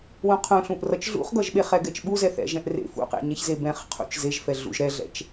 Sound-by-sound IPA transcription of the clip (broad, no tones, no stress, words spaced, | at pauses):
wũqʰũɬũʔ rʌt͡ʃɮṵχɡʌʒɓe χɛɡɛt͡ʃɓuzɛ θɛ̰ʒɛ̃ʔrḛ fṵqḛɲɛçze bɛ̃χ qʰṵt͡ʃzeʒfɛɮṵʒ ɾɛɮɛ̰t͡ʃ